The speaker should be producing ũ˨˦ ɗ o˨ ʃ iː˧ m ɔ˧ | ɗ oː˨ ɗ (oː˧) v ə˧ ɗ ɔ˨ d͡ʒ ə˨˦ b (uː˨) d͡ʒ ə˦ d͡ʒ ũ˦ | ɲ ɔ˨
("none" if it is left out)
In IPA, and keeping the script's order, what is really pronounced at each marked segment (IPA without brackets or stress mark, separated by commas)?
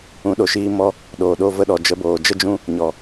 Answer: o˧, oː˨